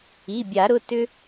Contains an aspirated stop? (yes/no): no